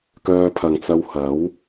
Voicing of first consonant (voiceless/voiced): voiceless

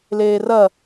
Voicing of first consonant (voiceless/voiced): voiced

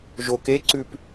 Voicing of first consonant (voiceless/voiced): voiced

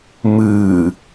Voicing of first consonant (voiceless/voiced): voiced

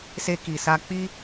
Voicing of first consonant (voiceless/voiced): voiceless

